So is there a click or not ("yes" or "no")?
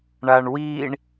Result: no